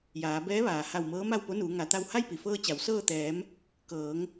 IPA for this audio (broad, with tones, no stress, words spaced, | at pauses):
jaː˩˧ bɛː˧˥ ʋaː˩ ha˧˩wmɤː˧˥ ma˥˨wpo˧˥nuː˩˧ ŋa˩˧t̪a˧w ha˥˨jpi˩fɤː˧ t͡ɕa˩˧w sɤː˥˨ t̪ɛː˩˧m | kɤː˩˧ŋ